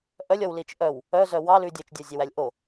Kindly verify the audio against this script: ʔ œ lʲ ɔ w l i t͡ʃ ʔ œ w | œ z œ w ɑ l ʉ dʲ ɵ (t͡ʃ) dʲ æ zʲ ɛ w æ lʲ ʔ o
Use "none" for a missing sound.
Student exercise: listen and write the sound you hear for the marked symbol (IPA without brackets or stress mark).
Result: t͡ʃ